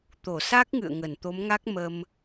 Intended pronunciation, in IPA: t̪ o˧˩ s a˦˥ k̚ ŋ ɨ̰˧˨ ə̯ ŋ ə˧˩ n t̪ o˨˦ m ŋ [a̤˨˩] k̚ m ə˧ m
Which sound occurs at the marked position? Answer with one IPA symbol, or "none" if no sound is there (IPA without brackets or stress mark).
a˦˥